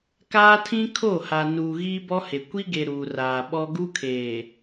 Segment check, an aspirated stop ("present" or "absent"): present